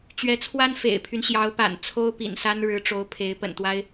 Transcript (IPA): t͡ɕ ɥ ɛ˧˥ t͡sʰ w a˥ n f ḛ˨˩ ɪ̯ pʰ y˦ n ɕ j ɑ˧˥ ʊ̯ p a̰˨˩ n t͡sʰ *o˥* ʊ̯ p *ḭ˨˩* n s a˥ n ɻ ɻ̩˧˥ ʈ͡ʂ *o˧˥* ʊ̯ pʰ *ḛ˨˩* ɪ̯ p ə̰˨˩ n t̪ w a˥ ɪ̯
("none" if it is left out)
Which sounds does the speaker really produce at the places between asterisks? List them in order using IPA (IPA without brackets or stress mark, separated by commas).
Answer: o˥, ḭ˨˩, o˧˥, e˧˥